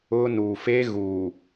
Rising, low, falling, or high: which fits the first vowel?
high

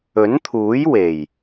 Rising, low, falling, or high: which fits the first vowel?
rising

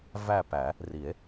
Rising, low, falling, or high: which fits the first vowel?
falling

